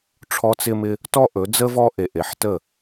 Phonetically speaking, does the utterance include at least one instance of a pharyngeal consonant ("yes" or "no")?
yes